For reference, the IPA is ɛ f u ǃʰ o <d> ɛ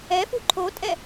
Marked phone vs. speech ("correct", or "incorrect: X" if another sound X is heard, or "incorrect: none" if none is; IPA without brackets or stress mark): incorrect: tʼ